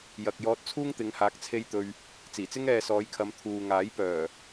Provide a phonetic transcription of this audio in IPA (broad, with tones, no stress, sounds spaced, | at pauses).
j ɐ˨ k̚ j ɔː˧ t̚ t͡sʰ uː˥ ŋ t̪ ɪ˨˧ ŋ h aː˧ k̚ t͡sʰ e˥ j t̪ ɵ˧ ɥ | t͡s iː˨˩ t͡s ɪ˥ ŋ ɛː˧ s ɔː˨˧ j kʰ ɐ˨˧ m t̪ʰ uː˨ ŋ aː˨˥ j p œː˨˩